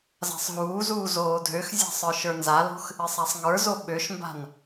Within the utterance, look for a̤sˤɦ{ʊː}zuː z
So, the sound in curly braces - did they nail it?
no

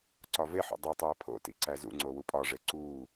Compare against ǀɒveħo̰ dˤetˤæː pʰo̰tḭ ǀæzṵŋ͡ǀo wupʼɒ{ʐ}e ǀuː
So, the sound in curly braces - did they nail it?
yes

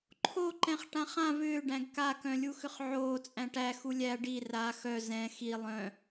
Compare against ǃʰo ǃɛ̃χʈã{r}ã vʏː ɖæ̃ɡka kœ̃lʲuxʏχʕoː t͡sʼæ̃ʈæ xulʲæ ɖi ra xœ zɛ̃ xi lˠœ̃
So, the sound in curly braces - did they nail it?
no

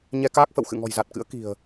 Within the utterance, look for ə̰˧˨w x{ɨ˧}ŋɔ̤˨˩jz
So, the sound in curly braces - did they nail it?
no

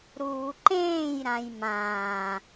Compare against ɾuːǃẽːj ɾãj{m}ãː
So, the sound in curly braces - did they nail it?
yes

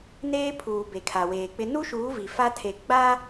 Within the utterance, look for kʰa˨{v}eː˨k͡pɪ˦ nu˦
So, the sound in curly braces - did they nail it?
no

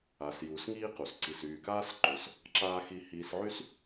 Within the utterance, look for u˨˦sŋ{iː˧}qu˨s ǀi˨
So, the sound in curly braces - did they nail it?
no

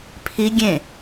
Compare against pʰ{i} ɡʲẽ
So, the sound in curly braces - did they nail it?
yes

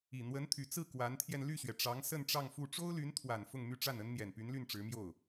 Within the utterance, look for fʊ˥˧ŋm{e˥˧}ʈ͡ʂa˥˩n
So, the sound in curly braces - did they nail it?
no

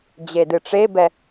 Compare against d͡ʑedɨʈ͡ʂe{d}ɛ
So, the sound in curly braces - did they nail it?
no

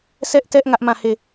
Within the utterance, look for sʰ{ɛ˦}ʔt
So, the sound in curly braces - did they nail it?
yes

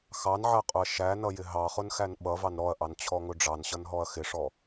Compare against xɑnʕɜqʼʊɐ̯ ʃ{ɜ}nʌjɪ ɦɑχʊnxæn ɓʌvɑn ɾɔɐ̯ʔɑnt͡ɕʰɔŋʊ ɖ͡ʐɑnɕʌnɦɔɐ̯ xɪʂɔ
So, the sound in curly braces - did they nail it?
no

